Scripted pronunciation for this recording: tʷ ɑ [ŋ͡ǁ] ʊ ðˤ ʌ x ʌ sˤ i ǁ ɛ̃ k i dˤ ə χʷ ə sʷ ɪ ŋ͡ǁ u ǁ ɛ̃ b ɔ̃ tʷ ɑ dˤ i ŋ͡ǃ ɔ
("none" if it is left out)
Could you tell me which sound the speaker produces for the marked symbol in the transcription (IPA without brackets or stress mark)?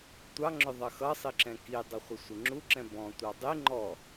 ŋ͡ǁ